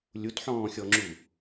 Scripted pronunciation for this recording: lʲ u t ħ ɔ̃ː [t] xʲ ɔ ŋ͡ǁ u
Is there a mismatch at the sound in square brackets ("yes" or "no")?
yes